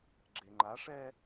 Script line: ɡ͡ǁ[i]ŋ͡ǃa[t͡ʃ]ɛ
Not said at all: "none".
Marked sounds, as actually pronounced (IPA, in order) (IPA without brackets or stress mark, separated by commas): e, ʂ